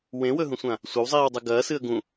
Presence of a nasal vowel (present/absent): present